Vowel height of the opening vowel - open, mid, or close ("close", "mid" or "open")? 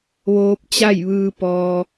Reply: mid